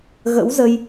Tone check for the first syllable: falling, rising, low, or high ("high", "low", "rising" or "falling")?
rising